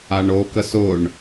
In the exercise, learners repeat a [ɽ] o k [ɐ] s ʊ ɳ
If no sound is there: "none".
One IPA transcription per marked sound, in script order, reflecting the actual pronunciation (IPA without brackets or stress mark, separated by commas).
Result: ɳ, ə